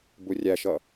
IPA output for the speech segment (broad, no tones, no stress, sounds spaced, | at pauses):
b u rʲ æ ʃ ʌ